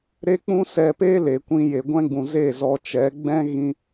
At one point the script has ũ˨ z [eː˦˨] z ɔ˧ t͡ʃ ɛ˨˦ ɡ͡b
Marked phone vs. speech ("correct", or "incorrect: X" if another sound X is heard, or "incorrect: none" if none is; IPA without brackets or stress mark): correct